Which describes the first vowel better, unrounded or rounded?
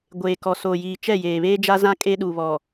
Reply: unrounded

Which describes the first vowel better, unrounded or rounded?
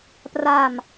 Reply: unrounded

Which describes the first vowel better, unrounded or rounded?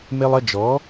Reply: unrounded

